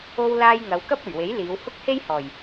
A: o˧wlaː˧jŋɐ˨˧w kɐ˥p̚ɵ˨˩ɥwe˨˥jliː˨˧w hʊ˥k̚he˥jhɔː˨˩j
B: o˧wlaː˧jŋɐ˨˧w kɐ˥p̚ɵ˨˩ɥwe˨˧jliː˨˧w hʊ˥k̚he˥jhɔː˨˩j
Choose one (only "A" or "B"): A